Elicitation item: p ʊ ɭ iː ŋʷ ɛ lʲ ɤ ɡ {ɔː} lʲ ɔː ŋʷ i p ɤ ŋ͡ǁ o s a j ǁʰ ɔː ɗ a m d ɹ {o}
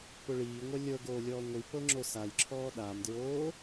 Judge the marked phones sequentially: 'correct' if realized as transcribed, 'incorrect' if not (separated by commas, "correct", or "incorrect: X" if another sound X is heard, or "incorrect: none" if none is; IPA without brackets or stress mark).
incorrect: oː, incorrect: oː